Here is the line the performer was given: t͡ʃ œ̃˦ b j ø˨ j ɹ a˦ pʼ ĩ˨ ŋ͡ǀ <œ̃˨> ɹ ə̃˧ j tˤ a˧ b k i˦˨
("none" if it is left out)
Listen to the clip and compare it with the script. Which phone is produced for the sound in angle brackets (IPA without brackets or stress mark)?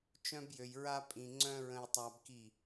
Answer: œ̃˦